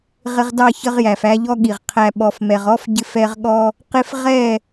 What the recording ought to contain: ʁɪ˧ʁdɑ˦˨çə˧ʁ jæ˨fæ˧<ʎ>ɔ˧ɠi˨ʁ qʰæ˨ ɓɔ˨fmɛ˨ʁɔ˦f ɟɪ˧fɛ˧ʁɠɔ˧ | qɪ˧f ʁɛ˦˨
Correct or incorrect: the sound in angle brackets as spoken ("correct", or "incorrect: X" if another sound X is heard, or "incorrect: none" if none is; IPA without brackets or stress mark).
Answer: correct